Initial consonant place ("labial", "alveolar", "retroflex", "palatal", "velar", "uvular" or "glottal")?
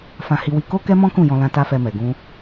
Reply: labial